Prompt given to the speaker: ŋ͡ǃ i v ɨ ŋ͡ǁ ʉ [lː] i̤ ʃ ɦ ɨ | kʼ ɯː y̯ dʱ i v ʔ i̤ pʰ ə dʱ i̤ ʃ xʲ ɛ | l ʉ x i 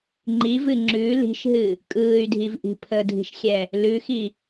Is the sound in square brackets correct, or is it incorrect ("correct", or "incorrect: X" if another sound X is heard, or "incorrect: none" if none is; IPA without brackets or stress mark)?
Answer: incorrect: l